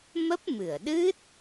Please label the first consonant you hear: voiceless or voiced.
voiced